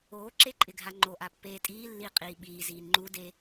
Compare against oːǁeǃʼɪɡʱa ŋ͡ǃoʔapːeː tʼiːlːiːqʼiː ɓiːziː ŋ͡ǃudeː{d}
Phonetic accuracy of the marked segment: incorrect: none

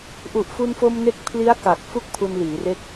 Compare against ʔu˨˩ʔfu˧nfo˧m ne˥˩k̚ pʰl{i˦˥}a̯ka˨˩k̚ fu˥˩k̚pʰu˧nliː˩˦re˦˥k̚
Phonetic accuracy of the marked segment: correct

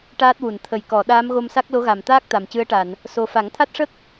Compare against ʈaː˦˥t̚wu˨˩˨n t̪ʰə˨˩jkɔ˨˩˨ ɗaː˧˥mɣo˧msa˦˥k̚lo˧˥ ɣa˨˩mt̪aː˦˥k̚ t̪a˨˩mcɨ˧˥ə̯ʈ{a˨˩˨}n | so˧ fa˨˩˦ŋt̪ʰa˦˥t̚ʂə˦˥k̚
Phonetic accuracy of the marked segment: correct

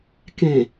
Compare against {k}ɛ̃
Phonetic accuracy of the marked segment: correct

